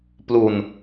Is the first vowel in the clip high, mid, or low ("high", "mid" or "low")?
high